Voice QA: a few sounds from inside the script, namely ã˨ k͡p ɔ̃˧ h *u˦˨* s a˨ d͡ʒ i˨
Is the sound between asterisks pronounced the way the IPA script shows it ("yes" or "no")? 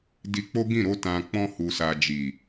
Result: no